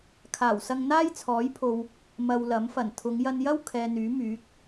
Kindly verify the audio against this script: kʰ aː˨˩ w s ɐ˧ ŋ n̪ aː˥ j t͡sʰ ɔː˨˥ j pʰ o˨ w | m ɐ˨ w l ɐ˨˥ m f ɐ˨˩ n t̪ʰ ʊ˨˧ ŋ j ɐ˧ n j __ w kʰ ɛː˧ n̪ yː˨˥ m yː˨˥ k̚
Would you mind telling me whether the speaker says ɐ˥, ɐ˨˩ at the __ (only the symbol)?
ɐ˥